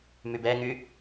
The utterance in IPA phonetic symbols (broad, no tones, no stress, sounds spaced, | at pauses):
m y b ɛ ŋ y